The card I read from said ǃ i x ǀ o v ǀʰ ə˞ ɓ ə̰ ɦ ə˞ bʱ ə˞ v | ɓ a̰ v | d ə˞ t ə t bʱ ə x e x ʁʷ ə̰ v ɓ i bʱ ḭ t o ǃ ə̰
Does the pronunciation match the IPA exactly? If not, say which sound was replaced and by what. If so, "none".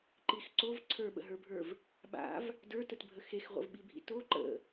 none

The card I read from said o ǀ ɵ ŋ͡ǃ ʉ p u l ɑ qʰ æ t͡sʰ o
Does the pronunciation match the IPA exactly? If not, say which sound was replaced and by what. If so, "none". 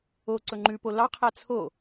u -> o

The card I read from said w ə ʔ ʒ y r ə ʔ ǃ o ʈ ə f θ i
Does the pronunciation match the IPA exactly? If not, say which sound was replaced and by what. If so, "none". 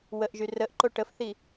none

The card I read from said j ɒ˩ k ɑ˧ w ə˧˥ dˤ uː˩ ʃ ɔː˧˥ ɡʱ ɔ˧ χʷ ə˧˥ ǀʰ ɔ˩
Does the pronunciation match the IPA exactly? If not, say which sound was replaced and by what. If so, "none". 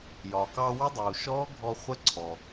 none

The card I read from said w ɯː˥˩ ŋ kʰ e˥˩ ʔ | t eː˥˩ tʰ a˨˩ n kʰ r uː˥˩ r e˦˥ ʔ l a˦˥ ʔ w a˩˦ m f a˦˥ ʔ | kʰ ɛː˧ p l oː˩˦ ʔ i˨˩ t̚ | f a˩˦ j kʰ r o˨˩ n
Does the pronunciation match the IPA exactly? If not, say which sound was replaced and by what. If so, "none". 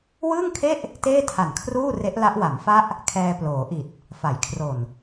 none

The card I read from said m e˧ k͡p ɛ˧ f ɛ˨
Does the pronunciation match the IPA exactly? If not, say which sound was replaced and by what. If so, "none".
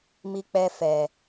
e˧ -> i˧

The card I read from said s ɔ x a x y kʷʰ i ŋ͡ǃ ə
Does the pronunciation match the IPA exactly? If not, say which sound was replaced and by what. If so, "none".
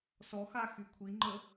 none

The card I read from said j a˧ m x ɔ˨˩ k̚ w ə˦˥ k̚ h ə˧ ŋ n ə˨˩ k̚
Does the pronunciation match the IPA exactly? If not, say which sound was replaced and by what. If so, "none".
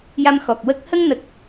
none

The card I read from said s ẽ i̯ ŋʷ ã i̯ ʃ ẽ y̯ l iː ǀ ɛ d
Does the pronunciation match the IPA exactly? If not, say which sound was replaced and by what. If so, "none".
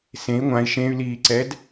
none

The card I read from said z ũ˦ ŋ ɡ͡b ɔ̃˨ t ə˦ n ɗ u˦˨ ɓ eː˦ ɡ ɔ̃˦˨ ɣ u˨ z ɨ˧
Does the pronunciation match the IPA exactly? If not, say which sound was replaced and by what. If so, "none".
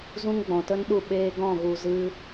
none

